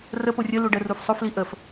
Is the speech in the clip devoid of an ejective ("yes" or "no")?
yes